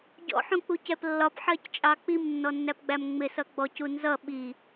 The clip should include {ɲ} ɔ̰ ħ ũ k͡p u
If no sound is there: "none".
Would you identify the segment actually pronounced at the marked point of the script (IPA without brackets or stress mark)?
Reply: ɟ